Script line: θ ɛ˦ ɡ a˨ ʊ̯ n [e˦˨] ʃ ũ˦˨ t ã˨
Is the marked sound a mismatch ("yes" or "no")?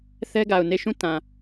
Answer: no